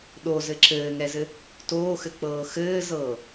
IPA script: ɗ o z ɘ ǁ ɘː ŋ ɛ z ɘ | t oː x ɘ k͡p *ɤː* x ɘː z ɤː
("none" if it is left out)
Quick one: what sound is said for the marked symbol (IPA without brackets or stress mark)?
ɤː